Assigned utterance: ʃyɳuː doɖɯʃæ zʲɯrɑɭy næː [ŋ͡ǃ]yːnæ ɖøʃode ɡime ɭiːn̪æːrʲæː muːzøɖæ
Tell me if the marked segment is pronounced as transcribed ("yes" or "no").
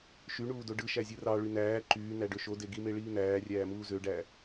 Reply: no